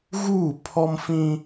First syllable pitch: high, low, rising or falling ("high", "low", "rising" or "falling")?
falling